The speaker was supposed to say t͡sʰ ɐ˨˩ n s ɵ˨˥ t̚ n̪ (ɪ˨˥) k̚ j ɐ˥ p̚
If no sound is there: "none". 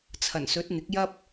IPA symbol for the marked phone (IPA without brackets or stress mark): ɪ˨˥